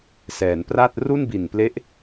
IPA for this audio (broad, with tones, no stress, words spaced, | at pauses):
sɛː˩˦npra˥˩t̚ ru˥˩nbi˨˩nple˦˥ʔ